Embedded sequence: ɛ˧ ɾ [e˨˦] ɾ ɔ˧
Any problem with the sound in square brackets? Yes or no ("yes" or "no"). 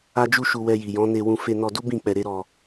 yes